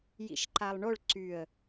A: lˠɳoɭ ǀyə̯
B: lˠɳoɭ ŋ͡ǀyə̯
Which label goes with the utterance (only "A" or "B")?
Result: A